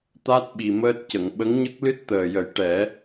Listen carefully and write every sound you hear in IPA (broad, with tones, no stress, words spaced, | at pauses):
t̪a˦˥t̚ɓi˨˩ məː˦˥t̚cə˨˩˨ŋ ɓə˧˥ŋɲə˦˥k̚lɨ˦˥t̚ t̪əː˨˩jə˨˩˦j ʈɛ˨˩˦